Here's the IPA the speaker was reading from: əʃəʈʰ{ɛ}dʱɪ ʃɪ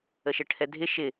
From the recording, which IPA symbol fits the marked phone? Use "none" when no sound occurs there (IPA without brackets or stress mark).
ɛ